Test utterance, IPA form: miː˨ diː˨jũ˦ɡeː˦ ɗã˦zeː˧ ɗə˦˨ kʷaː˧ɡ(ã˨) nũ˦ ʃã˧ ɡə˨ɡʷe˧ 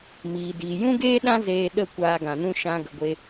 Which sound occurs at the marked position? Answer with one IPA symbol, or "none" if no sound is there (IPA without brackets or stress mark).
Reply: ã˨